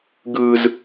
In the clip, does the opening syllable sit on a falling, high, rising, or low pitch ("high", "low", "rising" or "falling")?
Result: high